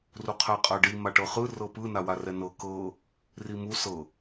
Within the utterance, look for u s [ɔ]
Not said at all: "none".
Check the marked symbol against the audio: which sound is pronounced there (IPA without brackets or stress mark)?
ɤ